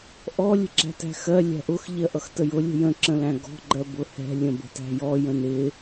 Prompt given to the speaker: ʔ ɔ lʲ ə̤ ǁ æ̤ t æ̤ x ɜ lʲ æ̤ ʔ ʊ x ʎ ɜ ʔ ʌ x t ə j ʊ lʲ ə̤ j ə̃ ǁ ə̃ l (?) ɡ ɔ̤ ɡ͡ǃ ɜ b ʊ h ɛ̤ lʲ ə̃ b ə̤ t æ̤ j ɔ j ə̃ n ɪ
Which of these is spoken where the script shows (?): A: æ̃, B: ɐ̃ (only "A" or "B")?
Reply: A